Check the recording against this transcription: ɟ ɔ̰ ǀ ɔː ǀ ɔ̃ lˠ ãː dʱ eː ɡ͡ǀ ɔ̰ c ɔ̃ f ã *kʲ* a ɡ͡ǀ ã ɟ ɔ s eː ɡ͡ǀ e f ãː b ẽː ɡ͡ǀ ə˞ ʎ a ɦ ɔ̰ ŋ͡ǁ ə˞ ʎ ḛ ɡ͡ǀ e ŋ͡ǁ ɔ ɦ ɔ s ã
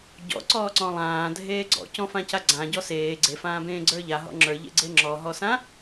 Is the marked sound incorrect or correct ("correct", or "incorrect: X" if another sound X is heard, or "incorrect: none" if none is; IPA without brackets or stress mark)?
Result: incorrect: c